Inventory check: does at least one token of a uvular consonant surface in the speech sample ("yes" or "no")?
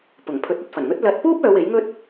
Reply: no